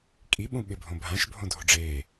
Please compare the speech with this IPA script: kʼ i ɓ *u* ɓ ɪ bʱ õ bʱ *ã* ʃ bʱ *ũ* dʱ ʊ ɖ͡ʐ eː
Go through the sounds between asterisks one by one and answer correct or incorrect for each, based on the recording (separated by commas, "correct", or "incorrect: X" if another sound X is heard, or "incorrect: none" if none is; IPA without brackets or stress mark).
incorrect: ũ, correct, incorrect: õ